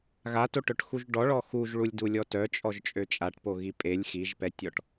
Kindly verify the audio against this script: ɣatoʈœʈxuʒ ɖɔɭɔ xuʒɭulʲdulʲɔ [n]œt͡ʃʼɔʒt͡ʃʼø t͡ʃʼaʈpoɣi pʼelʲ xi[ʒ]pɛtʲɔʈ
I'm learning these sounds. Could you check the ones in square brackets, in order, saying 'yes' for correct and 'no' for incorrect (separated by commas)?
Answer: no, yes